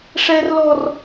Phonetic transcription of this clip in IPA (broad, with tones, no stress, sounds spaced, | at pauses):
ʂ ɛ˦ r l ɔ˦ r